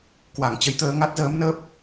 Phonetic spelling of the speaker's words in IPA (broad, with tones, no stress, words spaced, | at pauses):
kwa˧˩ŋt͡ɕə˨˦jt̪əː˧ ŋa˦˥t̚zəː˨˦mnəː˦˥p̚